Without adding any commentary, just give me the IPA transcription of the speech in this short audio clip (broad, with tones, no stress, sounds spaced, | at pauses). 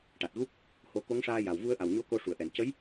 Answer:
ʈ a˨˩ t̚ ɣ u˦˥ k̚ | h o˧ k o˧˥ ŋ ʂ aː˧ j a˨˩ w v u˧ ə̯ ʔ a˨˩ w ɲ o˧ k o˧ ʂ u˨˩˨ ə̯ ʔ ɛ˨˩˨ n c ə˧˥ j